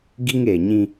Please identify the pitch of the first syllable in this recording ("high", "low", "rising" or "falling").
high